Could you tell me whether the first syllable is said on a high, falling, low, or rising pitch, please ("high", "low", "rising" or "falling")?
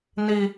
high